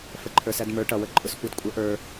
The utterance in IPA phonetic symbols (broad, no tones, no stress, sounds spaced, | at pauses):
f ə ǃʰ ə˞ s æ d m ə˞ ʈ ʌ w ə ǃʼ ʊ s kʷ ə˞ d kʷʼ ə ʔ ə˞